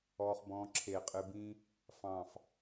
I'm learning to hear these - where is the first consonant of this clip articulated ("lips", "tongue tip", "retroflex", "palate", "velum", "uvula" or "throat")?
uvula